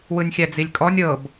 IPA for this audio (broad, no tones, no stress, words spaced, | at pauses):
wɯnʲxʲæd͡zilʲkʼɔnʲ ɤb